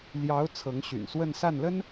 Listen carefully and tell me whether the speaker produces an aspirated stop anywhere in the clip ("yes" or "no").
yes